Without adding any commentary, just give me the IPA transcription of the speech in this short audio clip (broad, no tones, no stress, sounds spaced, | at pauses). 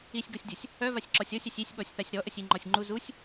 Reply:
i sʲ ɡ ɔ sʲ dʲ ɔ sʲ | œ v a sʲ ǁ ɔ sʲ ɔ sʲ a sʲ i sʲ ɓ ɔ sʲ θ a sʲ ɾ ɔ ʔ ə sʲ i ŋ͡ǃ ɔ sʲ ŋ͡ǃ u z u sʲ